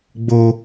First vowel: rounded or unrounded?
rounded